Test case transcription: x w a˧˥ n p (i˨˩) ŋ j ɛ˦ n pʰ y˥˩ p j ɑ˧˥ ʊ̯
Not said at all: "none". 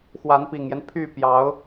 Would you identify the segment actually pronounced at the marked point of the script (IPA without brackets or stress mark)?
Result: i˨˩